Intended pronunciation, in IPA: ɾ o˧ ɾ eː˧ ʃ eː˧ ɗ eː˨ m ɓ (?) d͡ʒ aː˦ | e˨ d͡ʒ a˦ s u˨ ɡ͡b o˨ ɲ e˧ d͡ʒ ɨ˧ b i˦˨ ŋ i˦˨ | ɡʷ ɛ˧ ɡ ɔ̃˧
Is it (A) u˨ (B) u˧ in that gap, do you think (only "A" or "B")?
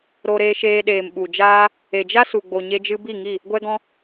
A